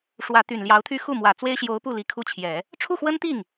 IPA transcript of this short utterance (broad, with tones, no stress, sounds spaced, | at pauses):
ʂ w ä˧˥ t̪ y˨˩ n l j ɑ˧˥ ʊ̯ t̪ʰ y˥ x u˥˩ m w ä˨˩ t͡s w e˥ ɪ̯ ɕ j o˧˥ ʊ̯ p u˥˩ l i˧˥ kʰ u˥˩ t͡ɕʰ j ɛ˨˩˦ | ʈ͡ʂʰ u˥˩ x w ə˥ n t̪ i˥˩ ŋ